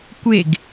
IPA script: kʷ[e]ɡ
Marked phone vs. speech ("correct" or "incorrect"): correct